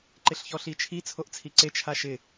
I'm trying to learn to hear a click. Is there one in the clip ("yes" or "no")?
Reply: yes